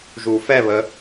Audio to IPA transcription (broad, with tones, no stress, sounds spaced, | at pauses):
ʒ u˨˩˦ f ɛ˥˨ β ə˨˦